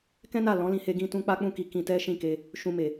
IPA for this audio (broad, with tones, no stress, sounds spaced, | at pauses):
k ɛ̃˦ n a˦˨ l ɔ̃˨˦ l ĩ˧ h e˧ ɡ ĩ˧ t ũ˧ k͡p a˦ k͡p ũ˦˨ k i˧ k ĩ˧ t ɛ˦ ʃ ĩ˦˨ k e˧ | ʃ ũ˧ m e˨